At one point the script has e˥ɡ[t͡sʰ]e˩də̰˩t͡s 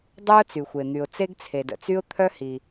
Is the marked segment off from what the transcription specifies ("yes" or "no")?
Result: no